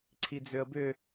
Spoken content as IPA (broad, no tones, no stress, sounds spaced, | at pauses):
ǀʰ i d͡z ø ə̯ b ʏ